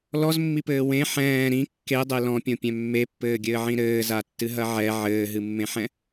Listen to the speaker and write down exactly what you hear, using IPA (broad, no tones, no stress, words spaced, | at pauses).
lɔzmːipɘː wẽ ħɛ̃ː ɾĩ kːedˤe lɔ̃pʲõpʲɛ̃ mːepːɘːɡʲɘːʕĩ ɾɘːzatːɨɦɐ ʕɛ ʕɘːɦɨmːẽħɛ̃